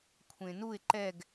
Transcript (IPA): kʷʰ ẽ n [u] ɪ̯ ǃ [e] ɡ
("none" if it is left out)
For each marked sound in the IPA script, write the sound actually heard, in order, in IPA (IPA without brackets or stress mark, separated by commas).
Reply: u, ɛ